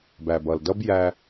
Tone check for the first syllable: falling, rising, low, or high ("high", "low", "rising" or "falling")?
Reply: low